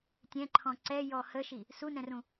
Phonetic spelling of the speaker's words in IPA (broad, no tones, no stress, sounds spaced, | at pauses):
tʲ ɛ̃ ǃʰ ɔ̃ ǀ ɛ j ɔ h ə ʃ i | s u n ɛ̃ r ũ